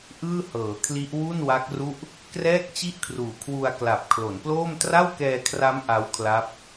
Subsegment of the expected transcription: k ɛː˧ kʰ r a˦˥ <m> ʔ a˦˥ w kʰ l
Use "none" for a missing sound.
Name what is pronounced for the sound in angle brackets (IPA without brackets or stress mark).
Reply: m